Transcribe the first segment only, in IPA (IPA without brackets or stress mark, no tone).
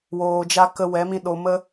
w